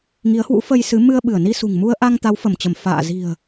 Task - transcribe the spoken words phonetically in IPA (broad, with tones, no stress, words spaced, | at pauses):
ŋi˨˦ə̯hwṵ˧˥fə˧jsɨ˨˦ mɨ˧ə̯ ɓɨ˧˩ə̯ni˧sṳ˨˩ŋmu˧ə̯ ʔa˧ŋ t̪a˨˦wfə˧˩mt͡ɕə˧˩m fa̰ː˧˨ zi̤˨˩ə̯